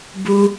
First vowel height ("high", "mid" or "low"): high